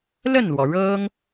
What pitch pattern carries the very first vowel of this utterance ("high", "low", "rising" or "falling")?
falling